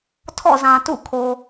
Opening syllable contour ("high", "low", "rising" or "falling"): falling